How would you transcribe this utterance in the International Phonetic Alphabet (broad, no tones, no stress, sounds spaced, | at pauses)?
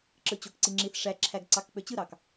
ǁ ɯ t͡ɕ o k ǀ i ŋ͡ǁ i θ ʂ æ ǁʰ æ ɡ ǀ ɑ k k͡p ø t͡ɕ ɯ ɾ ɑ k